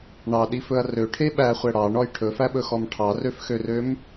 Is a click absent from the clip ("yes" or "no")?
yes